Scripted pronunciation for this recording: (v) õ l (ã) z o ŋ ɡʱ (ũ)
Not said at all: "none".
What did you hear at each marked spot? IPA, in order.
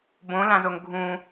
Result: b, ã, ũ

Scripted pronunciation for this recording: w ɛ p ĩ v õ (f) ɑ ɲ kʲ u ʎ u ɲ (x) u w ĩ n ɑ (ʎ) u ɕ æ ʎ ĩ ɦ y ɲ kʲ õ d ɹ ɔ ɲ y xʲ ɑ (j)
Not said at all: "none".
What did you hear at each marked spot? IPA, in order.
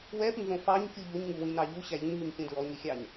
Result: f, ŋ, ʎ, ɲ

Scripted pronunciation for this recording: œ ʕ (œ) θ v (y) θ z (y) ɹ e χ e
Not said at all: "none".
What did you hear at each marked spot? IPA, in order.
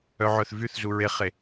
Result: œ, y, u

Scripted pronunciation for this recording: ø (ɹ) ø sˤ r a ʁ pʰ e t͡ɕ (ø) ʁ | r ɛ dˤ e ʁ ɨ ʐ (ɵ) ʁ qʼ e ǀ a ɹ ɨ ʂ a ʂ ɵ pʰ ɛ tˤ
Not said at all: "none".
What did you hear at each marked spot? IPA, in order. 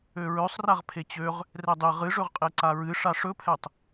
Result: ɹ, ø, ɵ

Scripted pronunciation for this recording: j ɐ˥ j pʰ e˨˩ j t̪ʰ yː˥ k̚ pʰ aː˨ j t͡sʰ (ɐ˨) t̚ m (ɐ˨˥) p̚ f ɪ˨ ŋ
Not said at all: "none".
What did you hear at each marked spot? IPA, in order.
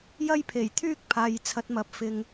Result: ɐ˨˥, ɐ˨˥

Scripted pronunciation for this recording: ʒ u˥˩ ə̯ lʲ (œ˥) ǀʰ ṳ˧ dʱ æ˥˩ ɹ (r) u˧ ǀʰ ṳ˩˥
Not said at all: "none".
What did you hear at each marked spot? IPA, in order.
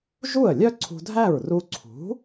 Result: œ˥, r

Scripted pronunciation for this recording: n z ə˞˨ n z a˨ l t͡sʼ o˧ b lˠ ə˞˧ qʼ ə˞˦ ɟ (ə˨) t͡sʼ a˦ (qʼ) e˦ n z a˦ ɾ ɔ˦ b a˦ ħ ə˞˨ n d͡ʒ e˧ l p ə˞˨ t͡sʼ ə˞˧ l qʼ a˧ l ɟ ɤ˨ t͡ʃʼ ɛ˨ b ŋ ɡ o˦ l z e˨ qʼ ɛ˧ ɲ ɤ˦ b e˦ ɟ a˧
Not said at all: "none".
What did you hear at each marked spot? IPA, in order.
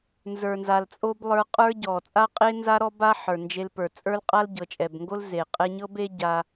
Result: ɔ˨, qʼ

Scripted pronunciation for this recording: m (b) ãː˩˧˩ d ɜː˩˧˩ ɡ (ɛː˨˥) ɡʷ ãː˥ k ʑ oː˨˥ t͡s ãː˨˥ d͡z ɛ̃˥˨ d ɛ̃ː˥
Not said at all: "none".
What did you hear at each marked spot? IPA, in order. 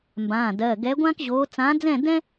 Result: b, ɛ˨˥

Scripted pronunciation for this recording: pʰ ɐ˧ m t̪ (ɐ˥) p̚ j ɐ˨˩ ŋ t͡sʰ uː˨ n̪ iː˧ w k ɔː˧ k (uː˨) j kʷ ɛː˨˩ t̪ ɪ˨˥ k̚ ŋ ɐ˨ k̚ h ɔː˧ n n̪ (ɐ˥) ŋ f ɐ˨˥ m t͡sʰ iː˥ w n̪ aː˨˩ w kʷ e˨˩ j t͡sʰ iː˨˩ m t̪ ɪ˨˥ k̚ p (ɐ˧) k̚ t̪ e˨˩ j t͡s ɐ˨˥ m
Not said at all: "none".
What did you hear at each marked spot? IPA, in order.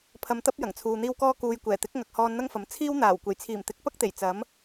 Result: ɐ˥, uː˨, ɐ˥, ɐ˥

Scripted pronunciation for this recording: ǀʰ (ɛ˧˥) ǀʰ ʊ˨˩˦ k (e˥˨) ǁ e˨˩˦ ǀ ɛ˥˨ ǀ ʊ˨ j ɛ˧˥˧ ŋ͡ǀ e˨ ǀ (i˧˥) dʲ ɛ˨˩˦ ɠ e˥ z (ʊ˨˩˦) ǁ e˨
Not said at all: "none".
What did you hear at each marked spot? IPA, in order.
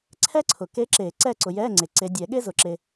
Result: ɛ˥, e˧˥, e˧˥, ʊ˨˩˦

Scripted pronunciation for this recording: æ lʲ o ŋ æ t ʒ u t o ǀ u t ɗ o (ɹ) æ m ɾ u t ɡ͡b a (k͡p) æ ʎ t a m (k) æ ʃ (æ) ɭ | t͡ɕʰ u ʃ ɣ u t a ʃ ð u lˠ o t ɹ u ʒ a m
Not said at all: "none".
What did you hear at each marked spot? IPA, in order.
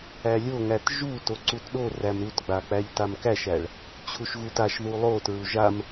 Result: r, k͡p, k, æ

